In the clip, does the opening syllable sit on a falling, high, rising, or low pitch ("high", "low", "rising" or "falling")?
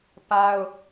high